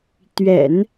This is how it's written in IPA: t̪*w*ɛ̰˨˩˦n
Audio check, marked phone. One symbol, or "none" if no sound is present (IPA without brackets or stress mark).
ɥ